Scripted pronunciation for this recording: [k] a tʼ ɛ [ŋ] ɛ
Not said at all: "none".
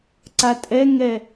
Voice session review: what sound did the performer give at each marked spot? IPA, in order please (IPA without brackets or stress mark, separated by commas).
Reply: ǀ, ŋ